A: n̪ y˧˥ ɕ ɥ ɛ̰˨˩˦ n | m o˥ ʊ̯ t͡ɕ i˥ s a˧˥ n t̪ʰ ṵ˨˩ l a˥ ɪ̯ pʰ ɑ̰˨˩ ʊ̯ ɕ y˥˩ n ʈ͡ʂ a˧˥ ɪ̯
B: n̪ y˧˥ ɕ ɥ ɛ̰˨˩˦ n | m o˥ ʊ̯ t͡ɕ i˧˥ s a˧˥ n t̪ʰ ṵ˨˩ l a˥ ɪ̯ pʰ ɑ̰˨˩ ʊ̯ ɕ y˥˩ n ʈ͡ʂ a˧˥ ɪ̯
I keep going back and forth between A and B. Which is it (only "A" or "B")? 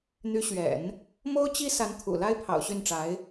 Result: A